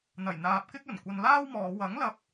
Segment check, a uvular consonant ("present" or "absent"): absent